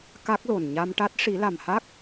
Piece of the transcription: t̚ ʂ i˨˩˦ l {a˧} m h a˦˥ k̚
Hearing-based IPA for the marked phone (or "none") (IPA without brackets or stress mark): a˨˩